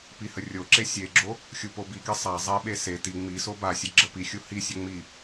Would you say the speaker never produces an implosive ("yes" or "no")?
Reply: no